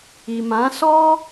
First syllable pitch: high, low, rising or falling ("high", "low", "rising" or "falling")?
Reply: low